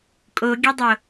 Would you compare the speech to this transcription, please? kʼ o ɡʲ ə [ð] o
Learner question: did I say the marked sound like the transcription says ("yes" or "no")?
no